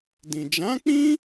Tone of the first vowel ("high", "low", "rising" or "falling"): low